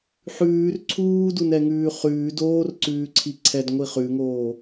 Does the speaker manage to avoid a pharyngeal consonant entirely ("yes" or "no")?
no